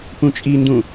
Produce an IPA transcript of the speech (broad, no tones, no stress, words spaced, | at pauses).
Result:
pũt͡ʃʼindũ